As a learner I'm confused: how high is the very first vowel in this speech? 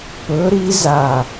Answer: mid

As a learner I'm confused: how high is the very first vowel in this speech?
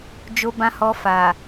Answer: mid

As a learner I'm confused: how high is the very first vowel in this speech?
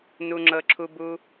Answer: high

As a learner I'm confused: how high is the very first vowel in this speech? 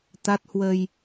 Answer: low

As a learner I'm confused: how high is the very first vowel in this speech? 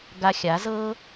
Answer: low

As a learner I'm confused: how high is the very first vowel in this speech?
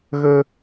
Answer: mid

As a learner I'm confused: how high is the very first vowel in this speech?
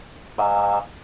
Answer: low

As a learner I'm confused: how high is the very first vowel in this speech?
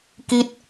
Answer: high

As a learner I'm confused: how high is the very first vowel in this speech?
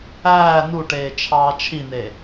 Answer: low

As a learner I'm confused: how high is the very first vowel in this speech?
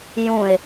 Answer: high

